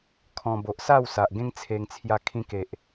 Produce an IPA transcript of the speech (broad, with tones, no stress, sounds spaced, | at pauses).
kʰ ɔ̃˧ b o˨ ʔ s a˥˧ w s a˨ ʔ ɡ ẽ˦ ŋ t͡sʰ e˧ ŋ t͡sʰ j a˧ kʰ ĩ˧ k e˨ ʔ